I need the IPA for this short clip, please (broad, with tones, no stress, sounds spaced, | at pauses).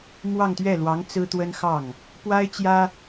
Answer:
m w ɑ˥˧ ŋ t̪ ɥ ɛ˥˩ l w ɑ˧˥ ŋ t͡s ɹ̩˥ t̪ w ə˥ n x ɑ˥˩ ŋ | p w a˥ ɪ̯ t͡ɕ j ä˥